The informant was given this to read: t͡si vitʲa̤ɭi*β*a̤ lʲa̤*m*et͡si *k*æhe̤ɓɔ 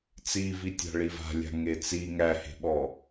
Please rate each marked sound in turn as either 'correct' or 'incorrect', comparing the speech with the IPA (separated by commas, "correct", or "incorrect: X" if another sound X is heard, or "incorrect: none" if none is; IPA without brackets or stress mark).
incorrect: v, incorrect: ŋ, incorrect: ŋ